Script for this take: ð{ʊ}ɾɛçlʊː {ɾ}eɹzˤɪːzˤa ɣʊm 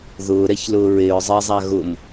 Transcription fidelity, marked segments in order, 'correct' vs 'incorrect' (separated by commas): incorrect, incorrect